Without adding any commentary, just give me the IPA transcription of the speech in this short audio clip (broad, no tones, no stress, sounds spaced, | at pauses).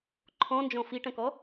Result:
ǃʰ ɔ̃ n d͡ʒ ɔ̃ f i ʈ ɐ̃ k ɔ